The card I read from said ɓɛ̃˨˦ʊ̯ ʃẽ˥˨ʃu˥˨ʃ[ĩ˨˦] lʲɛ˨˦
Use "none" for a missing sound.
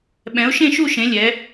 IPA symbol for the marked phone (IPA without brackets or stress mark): ẽ˨˦